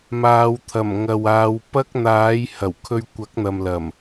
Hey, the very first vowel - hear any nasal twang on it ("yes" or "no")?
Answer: no